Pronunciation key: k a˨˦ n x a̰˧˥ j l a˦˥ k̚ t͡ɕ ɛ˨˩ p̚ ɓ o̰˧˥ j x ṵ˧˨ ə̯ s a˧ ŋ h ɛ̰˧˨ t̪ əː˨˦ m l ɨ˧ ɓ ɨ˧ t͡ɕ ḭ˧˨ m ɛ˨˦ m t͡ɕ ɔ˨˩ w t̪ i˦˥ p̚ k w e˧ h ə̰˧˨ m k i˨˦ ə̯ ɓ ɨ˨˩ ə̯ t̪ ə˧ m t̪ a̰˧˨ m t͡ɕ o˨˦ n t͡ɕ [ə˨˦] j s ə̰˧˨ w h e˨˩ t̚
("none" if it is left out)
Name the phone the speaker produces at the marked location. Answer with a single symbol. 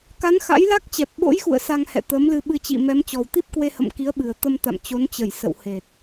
ə˧˩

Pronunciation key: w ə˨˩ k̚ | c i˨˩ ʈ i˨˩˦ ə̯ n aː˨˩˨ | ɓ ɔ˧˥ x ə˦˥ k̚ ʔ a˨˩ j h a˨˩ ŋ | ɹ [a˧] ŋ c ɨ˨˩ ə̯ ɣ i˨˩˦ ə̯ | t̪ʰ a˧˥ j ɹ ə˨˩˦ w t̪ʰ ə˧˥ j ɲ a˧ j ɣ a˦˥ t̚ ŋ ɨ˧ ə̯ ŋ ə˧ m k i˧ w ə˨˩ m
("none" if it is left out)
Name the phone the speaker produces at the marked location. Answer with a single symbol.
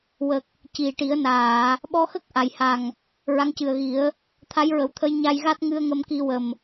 a˧˥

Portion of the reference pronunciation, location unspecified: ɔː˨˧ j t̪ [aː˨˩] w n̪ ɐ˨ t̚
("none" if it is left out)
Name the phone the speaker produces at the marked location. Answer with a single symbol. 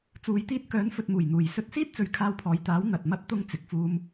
aː˨˥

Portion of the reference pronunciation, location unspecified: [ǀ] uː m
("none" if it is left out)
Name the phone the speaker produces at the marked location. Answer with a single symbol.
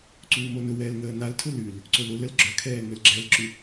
ǀ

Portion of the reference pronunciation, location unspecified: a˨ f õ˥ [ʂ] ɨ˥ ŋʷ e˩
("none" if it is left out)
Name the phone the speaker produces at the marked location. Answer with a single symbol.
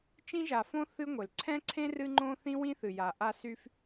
θ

